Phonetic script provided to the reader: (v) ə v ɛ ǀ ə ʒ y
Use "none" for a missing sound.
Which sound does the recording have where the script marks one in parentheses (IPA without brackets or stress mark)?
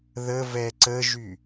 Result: ð